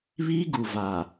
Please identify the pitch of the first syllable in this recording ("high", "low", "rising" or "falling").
high